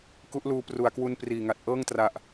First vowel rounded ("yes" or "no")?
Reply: yes